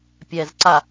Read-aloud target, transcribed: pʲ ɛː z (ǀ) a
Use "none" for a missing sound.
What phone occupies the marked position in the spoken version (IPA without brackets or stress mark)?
ǀ